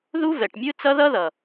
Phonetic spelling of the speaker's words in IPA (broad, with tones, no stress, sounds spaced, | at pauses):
ð u˦ v ɛ˨ ʈ mʲ ɯ˦ t͡s ʌ˦ ð ʌ˦ ð ʌ˨